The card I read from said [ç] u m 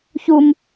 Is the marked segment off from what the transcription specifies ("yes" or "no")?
no